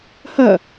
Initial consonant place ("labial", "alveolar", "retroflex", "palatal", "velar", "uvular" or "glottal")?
glottal